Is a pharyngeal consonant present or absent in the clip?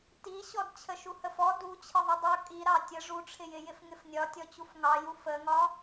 absent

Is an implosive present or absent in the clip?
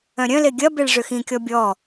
absent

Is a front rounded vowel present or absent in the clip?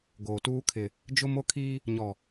absent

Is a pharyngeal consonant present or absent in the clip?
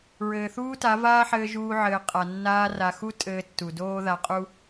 present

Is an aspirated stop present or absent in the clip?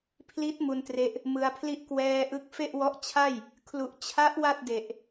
present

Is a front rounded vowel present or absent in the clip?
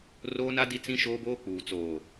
absent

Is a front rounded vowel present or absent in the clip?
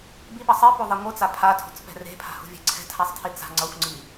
absent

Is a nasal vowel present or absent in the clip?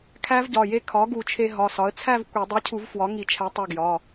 absent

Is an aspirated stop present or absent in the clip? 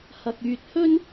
absent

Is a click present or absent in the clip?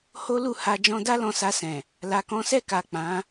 absent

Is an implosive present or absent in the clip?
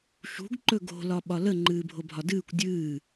present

